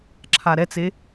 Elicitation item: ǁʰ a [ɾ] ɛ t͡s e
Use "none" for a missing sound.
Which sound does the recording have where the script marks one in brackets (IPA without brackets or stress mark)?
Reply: ɾ